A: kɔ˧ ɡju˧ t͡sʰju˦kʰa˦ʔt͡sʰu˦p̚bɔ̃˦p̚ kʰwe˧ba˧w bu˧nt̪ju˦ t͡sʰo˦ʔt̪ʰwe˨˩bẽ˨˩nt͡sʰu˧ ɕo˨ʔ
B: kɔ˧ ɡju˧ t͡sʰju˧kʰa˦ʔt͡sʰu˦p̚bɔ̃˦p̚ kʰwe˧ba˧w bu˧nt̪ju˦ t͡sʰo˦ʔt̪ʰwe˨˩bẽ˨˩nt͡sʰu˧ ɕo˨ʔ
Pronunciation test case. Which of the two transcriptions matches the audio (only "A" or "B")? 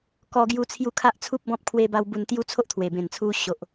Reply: B